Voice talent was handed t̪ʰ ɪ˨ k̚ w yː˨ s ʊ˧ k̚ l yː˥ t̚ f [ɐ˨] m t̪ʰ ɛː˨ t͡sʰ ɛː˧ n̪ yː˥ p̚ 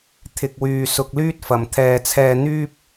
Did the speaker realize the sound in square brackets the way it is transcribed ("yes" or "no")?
yes